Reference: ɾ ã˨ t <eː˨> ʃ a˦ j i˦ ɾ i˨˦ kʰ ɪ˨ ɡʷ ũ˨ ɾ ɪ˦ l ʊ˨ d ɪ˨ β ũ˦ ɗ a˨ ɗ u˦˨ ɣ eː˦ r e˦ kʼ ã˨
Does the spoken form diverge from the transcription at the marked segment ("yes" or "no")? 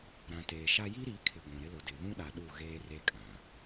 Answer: no